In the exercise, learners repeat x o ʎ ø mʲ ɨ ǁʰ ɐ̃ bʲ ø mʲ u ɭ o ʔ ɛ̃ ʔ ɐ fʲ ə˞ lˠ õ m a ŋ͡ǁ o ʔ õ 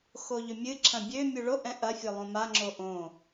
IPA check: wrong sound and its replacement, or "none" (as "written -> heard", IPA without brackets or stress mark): none